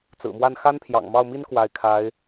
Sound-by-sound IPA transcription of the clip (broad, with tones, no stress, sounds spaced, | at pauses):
t͡s ɹ̩˨˩ m w a˥˩ n x a˥ n pʰ j ɑ̰˨˩ ŋ m ɑ˥˩ ʊ̯ m i˥ n k w a˧˥ ɪ̯ kʰ a˧˥ ɪ̯